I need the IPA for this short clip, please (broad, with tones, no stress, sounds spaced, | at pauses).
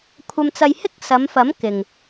kʷʰ ɐ˧ m t͡s ɐ˧ j h ɪ˥ k̚ s ɐ˨˧ m f ɐ˨˥ m k ɪ˨ ŋ